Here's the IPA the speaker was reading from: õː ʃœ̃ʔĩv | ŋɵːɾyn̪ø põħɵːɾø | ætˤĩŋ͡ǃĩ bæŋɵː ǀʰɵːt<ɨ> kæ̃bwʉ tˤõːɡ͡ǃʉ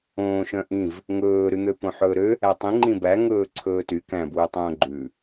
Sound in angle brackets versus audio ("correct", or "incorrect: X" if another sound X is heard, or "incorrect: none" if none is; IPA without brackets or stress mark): incorrect: y